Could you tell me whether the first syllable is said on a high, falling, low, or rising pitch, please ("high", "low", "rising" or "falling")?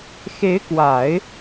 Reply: rising